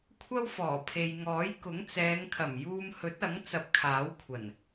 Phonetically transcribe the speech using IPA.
kʷʰ ɐ˥ w f ɔː˨˩ pʰ e˨ j ŋ ɔː˨˥ j k ʊ˨˥ ŋ t͡s ɛː˨˧ ŋ kʰ ɐ˨˩ m j uː˧ m h ɵ˨˥ t̚ ɐ˨˥ ŋ t͡s ɐ˧ p̚ kʰ aː˨˥ w kʷʰ ɐ˨˩ n

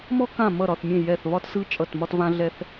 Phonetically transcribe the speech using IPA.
m ɔ˥ k ã˥˩ m ʌ˥˩ ɾ ɒ˥˩ θ mʲ ẽ˥˩ j ɛ˥˩ θ β ɒ˥ t s ɯ˥ t͡ʃʼ ʌ˥˩ t m ɒ˥ t v ã˥ ɮ ɛ˥ θ

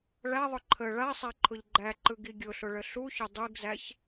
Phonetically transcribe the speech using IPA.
ɭ æ ðˤ ʊ ǃʰ ə ɭ a sˤ æ ǃʰ ʊ ʎ ɡ͡ǃ æ ǃ ɯ ɡ i ɡʲ ʊ ɬ ʊ ɭ ə ɬ u ç ʊ dˤ i ɡ z æ ç

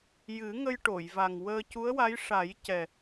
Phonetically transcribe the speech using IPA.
j ɨ˨˩˦ ŋ ə˧ j ʈ o˨˩˨ j v a˨˩ ŋ w əː˧ c u˧˥ ə̯ w a˧˥ j ʂ a˨˩˦ j c ɛ˨˩

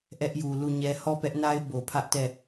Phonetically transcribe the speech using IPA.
ʔ ɛ˦ ʔ j u˨ l u˦˨ ɲ ɛ˦ h ɔ˦˨ p ɛ˦ ʔ n a˦ ɪ̯ b o˨ pʰ ä˦ ʔ t ɛ˦˨

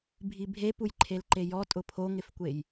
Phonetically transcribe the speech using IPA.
bʱ i bʱ e p u j ǃʰ e l ǃ e j ɔ tʼ ʊ pʰ o ŋ ɪ f kʷ e j

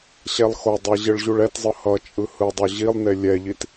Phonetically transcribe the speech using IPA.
ɕ ɛ lˠ x o dˤ e ʑ ɯ ɭ ʑ u ɭ ɛ t zˤ ɯ h ʌ t͡ʃʼ ɯ h ɯ dˤ o ʑ i lˠ n e lʲ ɛ ʎ i t

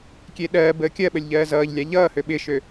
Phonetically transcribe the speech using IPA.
kʲ e ɗ ɜː b əː kʲ ɜ ɓ ə lʲ ʎ ɜː z ʌː ʎ lʲ a ʎ ʌː h ø ɓ ɪ ʃ ø

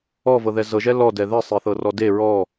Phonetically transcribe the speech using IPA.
ɔ v ɤ ð ɛ z ɤ ʒ ɛ l ɔ d ɛ ð ɛ sˤ e θ ɤ r ɔ d e ɹ ɔ

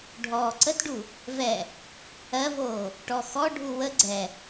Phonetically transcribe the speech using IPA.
ɖʱ ɔː ǀ ə t ɖ u | v ɛ | ɜ v oː | ʈ ɔ x ɔ ɖʱ u w ə ɡ͡ǀ ɛ

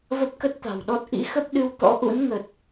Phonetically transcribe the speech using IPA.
v ə˦˥ p̚ k ə˦˥ t̚ t̪ a̤˨˩ w ɗ ɔ˦˥ t̚ ʔ ḭ˧˥ x ə˦˥ p̚ ɗ ɨ˧ w t̪ ɔ̰˧˥ ʔ ṵ˧˥ n ŋ ə˨˩ t̚

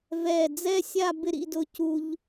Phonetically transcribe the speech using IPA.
v ɛ˧˩ d͡z ɛ˥˧ sʲ a˥˧ b ɪ˥˧ ɾ ḭ˥˧ d ʊ˧ c u˧ ʎ

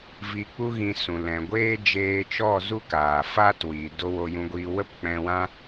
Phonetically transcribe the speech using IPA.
v i˧ k͡p u˦ ɣ ĩ˧ s ũ˨ l ɛ̃˨ ɡʷ eː˦ d͡ʒ eː˧ t͡ʃ ɔ˦˨ z u˦ k aː˨ f a˦ t w i˨ d o˧ w o˧ j ũ˧ ɡʷ iː˧ w ə˦ p k͡p ɛ̃˧ w ã˦

